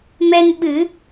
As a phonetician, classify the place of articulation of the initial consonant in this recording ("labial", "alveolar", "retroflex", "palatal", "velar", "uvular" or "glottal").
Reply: labial